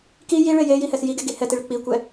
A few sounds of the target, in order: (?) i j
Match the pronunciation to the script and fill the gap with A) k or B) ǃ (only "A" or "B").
A